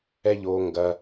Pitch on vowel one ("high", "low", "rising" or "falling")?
high